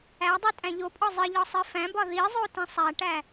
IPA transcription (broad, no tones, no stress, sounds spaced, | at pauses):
æ dˤ i tʼ æ̃ ʎ o pʼ ɒ zˤ i ʎ ɒ sˤ i f æ̃ b ɒ ð i zˤ o t ĩ sˤ æ ʈ æ